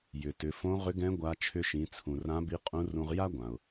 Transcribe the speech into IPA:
j ʏ˩ t ʏ˩˧ f õ˧˥ ʁ ʏ˧˥ ɡ ɛ̃˧˥ ɡʷ a˧˥ t͡ʃʰ ʏ˧ ʃ ĩ˩˧ t͡sʰ ũ˩ r ã˧˥ b i˧˥ qʼ ũ˧˥ r ũ˧ ʁ j a˥ ɡʷ ã˩ ʊ̯

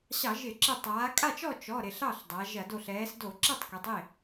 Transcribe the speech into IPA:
ɕ ɑ˧˩˧ ʒ ɪ˧˩˧ ǁ ɪ˧˩ tˤ aː˩˧ kʼ a˥˩ t͡ʃ ɔ˥˩ t͡ʃ ɔ˩˧˩ ɾ ɪ˧˩ ɬ ɑ˥˩ ɬ dˤ a˩˧ ʒ ɐ˧˩˧ d o˧˩ ɬ ɛː˩˧ s d o˧˩˧ ǁ ɛ˥˩ tˤ k ɛ˩˧ tˤ e˥˩

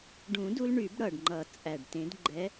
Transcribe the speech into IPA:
ɖ ũ˨˩˦ d u˧ l ɳ y˨˩˦ b ɽ ʌ˨˩ ɖ ŋ͡ǃ ʌ˨˩˦ t͡sʼ æ˨˩ ɖ t ẽ˨˥ d ɡ͡ǃ ɛ˨˥

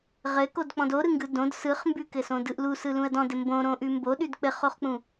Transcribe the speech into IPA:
ʁ ɘ k o d k͡p ɔ̃ d o ɾ ɯ ŋ ɡ ɯ d õ d s ɯ χ m b ʉ k ɘ s õ d ɯ ʔ l u s ɯ l ũ ə̯ d ɔ̃ d ɘ m b õ ɾ õ ʔ ʉ m b o ɗ ʉ d k͡p ɘ χ o χ k͡p ũ

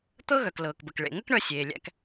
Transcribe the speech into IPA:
t̪ ɤ˥ ɣ œ˩ k l ɤː˩ k b ə˩ k ɭ ḛ˩ ŋ ə˥ k ɳ œ˧ sʲ eː˩ lʲ æ̰˧ k

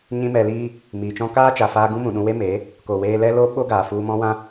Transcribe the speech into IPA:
ɲ ĩ˦ m ɛ˧ l iː˧ | m iː˨ t͡ʃ ɔ̃˦ k aː˦ t͡ʃ a˨ f aː˧ ɡ ũ˦ m ũ˨ ɗ ũ˧ w e˦ m e˨˦ | k o˨ w eː˧ l ɛ˦ l o˦ ɓ o˦ ɡ aː˨ f u˧ m ɔ̃˦ w ã˦

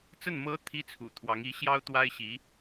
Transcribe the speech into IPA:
t͡s ə˥˩ n m ɤ˧˥ t̪ʰ i˥ t͡sʰ ṵ˨˩ t̪ʰ w ɑ˧˥ ŋ i˧˥ ɕ j ɑ˥ ʊ̯ t̪ w a˥ ɪ̯ ɕ i˧˥

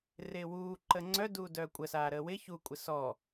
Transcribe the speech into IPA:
r ɪː w uː ǃ əː ŋ͡ǀ œ d uː d œː kʷʼ ə s aː ɾ əː w ɪ ç u kʷʼ ɪ s ɔ

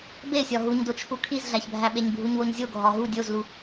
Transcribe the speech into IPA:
b e sʲ ɒ ɦ u ɲ d o t͡ʃʰ u kʰ i z ɮ æ ç bʱ æ ɓ e ɲ bʱ u ɲ w o ɲ zʲ o ɡʱ ɒ ɦ u dʲ o z l u

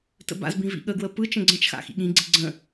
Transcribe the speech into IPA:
t ə̰ b a̰ z b ĩ v ḭ ɠ ə ɡ w ə p ɯ t͡ʃ ə̃ ɡ͡ǀ ə̃ t͡ʃ x a̰ x ḭ ɠ ĩ ɡ͡ǀ i ɡ͡ǀ ə̃

